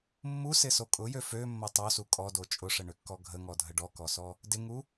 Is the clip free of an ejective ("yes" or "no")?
no